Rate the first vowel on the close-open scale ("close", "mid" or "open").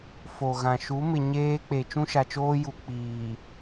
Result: mid